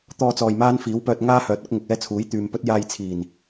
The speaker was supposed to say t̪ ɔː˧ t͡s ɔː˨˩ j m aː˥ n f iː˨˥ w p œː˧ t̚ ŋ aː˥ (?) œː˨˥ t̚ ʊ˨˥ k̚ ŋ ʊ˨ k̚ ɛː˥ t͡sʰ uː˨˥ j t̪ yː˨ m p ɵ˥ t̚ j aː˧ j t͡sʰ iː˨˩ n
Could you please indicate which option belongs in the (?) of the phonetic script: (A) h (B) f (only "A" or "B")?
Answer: A